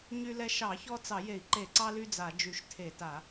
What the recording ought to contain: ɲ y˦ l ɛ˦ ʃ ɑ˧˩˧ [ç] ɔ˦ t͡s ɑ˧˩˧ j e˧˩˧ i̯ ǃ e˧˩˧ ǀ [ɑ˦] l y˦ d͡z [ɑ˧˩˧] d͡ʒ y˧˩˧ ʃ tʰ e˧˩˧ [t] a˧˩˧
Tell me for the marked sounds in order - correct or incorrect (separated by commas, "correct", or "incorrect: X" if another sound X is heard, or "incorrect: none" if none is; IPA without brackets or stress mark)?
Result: correct, correct, incorrect: a˧˩˧, correct